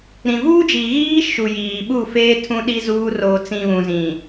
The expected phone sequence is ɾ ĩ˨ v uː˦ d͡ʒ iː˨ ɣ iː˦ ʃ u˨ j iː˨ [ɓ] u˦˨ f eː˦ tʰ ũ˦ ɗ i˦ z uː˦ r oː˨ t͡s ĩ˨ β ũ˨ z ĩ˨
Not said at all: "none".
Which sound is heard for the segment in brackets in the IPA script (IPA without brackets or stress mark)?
ɓ